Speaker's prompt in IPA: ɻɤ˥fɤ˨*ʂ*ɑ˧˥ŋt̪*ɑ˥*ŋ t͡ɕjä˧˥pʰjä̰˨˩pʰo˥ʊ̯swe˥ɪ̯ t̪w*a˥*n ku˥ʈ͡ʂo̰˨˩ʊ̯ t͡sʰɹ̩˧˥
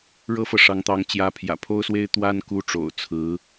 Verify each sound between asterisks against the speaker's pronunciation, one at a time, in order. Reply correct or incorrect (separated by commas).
correct, incorrect, correct